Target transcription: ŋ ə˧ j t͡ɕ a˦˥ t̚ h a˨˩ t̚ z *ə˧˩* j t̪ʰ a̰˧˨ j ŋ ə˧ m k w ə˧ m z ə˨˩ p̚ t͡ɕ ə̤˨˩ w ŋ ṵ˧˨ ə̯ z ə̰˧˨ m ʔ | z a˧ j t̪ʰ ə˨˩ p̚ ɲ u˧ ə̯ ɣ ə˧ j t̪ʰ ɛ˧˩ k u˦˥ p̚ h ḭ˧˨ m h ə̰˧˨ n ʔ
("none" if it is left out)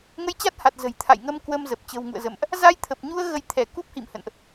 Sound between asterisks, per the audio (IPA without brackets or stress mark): ə̤˨˩